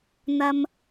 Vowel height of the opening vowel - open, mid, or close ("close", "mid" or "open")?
open